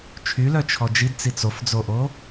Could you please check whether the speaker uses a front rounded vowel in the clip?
yes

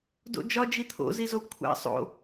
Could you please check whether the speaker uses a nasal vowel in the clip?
no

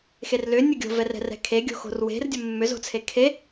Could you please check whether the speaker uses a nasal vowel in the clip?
no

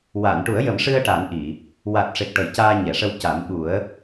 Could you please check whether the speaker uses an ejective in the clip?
no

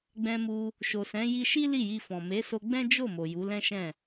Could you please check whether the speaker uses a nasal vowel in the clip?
yes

